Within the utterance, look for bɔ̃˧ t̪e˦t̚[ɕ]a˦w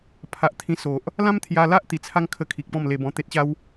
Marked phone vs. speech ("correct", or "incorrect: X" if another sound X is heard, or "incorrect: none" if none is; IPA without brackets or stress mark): correct